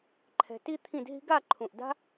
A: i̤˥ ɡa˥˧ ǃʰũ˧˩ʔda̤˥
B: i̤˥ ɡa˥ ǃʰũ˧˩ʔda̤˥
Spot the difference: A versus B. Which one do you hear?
A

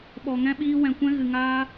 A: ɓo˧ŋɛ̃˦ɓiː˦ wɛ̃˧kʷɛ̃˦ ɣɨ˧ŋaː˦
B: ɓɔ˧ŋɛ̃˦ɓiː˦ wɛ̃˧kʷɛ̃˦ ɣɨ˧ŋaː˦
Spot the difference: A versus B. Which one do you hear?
B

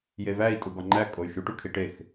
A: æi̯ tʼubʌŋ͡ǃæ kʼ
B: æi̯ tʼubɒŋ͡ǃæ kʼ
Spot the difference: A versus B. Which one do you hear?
B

